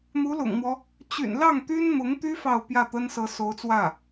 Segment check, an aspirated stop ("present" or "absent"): absent